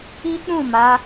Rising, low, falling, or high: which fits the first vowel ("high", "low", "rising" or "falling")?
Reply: high